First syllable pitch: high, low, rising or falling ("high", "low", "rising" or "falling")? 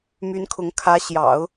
rising